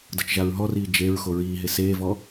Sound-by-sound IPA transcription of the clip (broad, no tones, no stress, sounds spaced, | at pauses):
d ɤ t͡ʃ ʒ a ɹ ɦ ɔ r iː d͡ʒ e ɹ x o ɹ iː ɦ e s eː v ɔ